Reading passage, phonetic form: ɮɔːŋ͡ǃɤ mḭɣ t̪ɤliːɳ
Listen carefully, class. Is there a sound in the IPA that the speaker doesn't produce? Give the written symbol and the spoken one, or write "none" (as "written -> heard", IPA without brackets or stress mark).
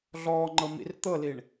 ɣ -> r